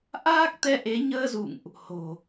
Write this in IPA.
ʔ aː˦˥ k̚ t̪ ɛ˧ ʔ e˨˦ ɲ əː˧ z ṵ˧˨ ŋ ʔ | h o̤˨˩

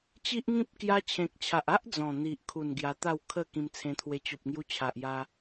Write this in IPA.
t͡ɕ i˦ ʔ ŋ ĩ˦ p̚ k j a˧ t͡ɕʰ ẽ˨ k̚ t͡ɕʰ a˨ ʔ a˦ ʔ d͡z ɔ̃˨˩ n̪ i˨ ʔ kʰ u˨˩ n ɡ j a˧ t̪ a˥˧ w kʰ ə˥˧ k ĩ˧ m t͡sʰ ẽ˧ t̪ʰ w e˧ t͡ɕ o˨ p̚ ŋ j u˧ t͡ɕʰ a˨ ʔ j a˧

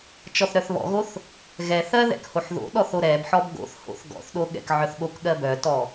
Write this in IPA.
t͡ʃ ɔ θ ɾ œ θ β ɔ̰ ɣ o θ | ɣ ɛ θ ɜ ð ɛ̰ k h o ħ ð o̰ ɗ ɔ θ o ɾ ɛ b ħ ɔ b ɡ o̰ θ h o̰ θ ɡ ɔ̰ θ ɗ o ɠ ɛ̰ k ʕ œ θ ɠ o k ɠ ɜ b œ t ɔ

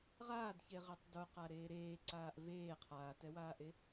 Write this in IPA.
ʁ aː d ç e ʁ e tˤ d o q a ɾ eː ɾ eː ǀ aː ʔ v eː qʰ aː t ɛ w aː ʔ e

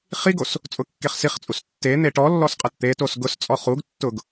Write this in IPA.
χ i ɡ o s | t͡sʼ ʊ kː e χ s i χ t͡sʼ u s tː e n̪ e ʈ ɔ lː ɔ s qʼ ɐ t t̪ e t o s ɡ ʊ s t͡sʼ ɔ χ u ɡ tː ʊ ɡ

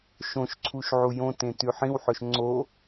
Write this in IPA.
ʃ õ ʃ ǀʰ u ʃ ʕ u j õ t ẽ t ʉ ħ ĩ w ħ ɵ ʃ ŋ͡ǀ o

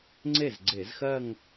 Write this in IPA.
ŋ͡ǀ e˥˩ z ɡ͡ǀ e˧˩˧ z x ɜ˥˧ ŋ

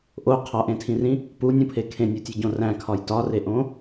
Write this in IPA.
ʔ o qʰ ɒ ʔ ẽ tʰ ĩ r ĩ | p u nʲ ũ pʰ e kʰ ẽ nʲ u tʲ o ɟ õ r æ̃ kʰ ɒ j t ɒ r e ʔ õ

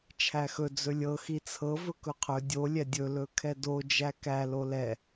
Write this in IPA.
t͡ʃʰ æ x ɵ d͡z ɵ lʲ ɤ x i t͡sʰ ɤ v ɵ k ɵ qʰ ɵ dʲ o lʲ ɛ dʲ ɵ l ɵ kʰ ɛ d o d͡ʒ æ k æ l o l ɛ

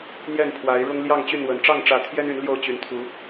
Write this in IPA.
n̪ j ɛ˥˨ n pʰ w a˨˦ ɪ̯ ɻ ʊ˦ ŋ l j ɑ˥˨ ŋ t͡ɕ y˥˨ n w ə˨˩ n ʈ͡ʂ ɑ˥˨ ŋ ʈ͡ʂ ä˨˦ t̪ʰ j ɛ˦ n y˨˦ n l j o˥˨ ʊ̯ t͡ɕ y˨˦ n t̪ʰ u˨˦

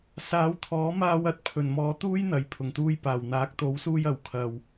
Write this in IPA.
s aː˨˧ w t̪ʰ ɔː˨˥ m aː˧ w ɐ˨˥ t̚ pʰ ɵ˨˩ n m ɔː˨˥ t̪ uː˥ j n̪ ɐ˨˩ j pʰ ʊ˨˩ ŋ t̪ uː˧ j p aː˨˩ w n̪ aː˨˥ k̚ t̪ o˨˥ w s uː˧ j ɐ˨˩ w kʰ ɐ˨ w

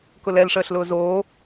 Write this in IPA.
k ʊ l ɛ l ʂ əː ɬ l ʊː z oː

